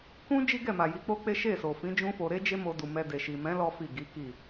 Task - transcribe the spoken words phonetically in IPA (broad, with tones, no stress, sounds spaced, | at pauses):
k ũ˦ d͡ʒ i˦ ɡ ɛ˦˨ m a˨ j i˨˦ k͡p o˦ k͡p e˦ ʃ e˦˨ s o˨ f ĩ˨˦ d͡ʒ ũ˦ f o˧ ɾ e˦ d͡ʒ e˦ m o˧ d u˨ m ɛ˧ d e˨ ʃ i˨ m ɛ̃˨˦ l ɔ˦ f i˦˨ ɡ i˨˦ k i˦˨